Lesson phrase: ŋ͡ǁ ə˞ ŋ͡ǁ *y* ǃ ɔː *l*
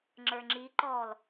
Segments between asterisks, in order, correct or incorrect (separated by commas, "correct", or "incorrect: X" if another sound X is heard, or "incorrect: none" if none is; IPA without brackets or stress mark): incorrect: i, correct